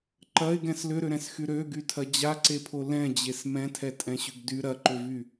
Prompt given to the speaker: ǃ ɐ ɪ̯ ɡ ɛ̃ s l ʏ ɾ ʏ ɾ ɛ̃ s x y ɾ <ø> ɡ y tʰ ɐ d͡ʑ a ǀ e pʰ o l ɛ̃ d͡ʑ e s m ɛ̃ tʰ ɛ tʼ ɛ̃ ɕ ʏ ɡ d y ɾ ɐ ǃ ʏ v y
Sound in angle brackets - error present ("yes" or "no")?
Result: no